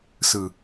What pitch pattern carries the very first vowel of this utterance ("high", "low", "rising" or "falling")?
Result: low